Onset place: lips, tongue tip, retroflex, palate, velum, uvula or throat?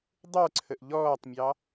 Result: tongue tip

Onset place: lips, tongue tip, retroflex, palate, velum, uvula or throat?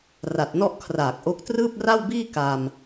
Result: tongue tip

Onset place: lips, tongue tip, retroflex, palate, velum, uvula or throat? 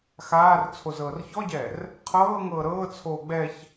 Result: velum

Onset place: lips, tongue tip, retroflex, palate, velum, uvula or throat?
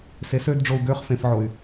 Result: tongue tip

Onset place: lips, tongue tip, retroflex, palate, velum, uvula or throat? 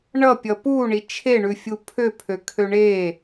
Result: retroflex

